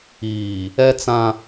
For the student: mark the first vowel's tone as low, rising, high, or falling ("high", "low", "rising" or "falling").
low